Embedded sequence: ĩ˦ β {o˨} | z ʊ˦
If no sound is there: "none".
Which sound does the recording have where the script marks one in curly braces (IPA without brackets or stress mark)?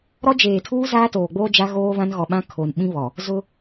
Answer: ɔ˨